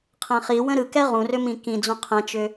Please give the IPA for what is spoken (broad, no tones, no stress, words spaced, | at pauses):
qʰɛ̃χiwə̃ ɾɯ kɛʁũrʏ mĩkĩd͡zũ qʰɛ̃t͡ʃʏ